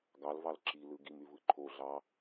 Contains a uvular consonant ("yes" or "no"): no